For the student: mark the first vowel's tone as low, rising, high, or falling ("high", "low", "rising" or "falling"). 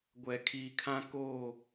low